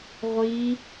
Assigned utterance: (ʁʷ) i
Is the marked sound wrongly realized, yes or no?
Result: no